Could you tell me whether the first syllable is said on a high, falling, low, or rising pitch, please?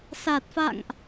low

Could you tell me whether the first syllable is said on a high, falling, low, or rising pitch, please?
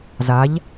rising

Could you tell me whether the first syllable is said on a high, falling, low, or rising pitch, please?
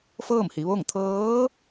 falling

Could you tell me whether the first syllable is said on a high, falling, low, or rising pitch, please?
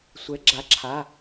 rising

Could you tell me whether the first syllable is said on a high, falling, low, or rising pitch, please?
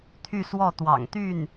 falling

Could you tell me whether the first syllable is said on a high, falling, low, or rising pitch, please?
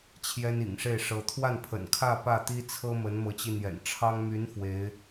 high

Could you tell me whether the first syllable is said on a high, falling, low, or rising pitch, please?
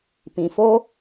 low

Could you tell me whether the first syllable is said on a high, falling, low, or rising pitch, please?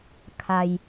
low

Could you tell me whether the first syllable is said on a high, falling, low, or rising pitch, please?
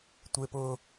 high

